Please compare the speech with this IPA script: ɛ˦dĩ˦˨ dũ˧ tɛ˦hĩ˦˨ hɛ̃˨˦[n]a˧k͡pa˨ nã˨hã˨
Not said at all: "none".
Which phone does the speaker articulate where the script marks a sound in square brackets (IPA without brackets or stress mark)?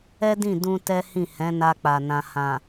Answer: n